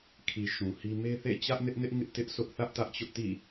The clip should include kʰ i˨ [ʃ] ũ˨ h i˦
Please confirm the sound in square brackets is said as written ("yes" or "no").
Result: yes